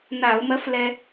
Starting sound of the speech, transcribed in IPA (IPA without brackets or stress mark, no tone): n